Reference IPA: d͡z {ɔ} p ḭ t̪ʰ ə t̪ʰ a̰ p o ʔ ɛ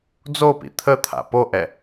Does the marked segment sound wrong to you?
yes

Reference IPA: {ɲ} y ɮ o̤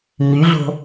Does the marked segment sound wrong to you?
no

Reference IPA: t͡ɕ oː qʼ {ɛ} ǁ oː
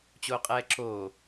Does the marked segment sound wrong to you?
yes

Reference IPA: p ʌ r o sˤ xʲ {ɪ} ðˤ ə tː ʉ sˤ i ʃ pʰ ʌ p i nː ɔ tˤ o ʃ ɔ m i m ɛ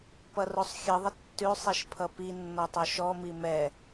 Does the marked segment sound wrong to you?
yes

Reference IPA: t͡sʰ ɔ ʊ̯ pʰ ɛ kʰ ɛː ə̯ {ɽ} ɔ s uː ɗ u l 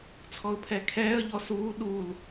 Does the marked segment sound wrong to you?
yes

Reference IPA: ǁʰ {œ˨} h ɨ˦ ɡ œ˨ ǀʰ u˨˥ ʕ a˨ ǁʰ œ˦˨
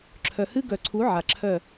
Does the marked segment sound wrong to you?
no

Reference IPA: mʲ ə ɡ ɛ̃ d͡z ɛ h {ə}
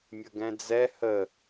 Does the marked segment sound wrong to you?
no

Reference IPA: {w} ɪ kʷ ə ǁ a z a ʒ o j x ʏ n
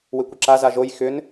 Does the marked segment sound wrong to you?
no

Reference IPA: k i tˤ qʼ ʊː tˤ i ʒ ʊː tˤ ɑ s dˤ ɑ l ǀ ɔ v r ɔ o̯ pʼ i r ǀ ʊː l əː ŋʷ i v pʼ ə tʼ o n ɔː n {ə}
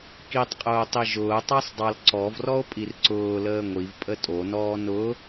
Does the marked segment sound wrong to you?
yes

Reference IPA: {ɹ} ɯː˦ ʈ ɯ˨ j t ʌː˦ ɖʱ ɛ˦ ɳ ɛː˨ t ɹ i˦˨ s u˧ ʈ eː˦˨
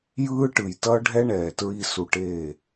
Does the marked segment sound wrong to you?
yes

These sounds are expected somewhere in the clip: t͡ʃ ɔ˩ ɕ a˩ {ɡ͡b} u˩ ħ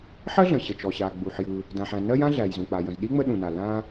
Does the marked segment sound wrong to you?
no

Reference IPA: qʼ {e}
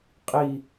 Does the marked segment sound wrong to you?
yes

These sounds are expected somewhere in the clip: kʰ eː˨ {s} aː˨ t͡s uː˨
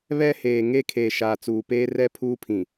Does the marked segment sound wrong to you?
yes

